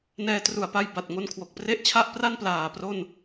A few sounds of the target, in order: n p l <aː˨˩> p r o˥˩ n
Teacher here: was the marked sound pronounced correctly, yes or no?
yes